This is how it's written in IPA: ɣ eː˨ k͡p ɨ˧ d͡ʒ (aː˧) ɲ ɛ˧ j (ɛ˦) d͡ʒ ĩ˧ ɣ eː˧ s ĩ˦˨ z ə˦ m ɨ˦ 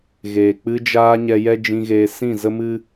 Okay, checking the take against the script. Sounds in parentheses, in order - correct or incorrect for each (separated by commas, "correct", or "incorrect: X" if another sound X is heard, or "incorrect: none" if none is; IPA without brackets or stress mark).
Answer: correct, correct